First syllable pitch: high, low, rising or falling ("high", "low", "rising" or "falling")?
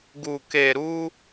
low